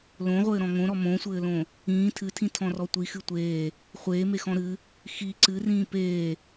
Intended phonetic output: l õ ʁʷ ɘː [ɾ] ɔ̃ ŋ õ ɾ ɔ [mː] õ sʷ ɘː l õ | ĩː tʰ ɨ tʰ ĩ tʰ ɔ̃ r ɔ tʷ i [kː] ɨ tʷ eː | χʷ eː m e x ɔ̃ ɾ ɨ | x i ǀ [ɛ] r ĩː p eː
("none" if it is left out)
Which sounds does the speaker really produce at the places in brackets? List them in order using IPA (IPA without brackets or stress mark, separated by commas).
ɾ, m, x, ɨ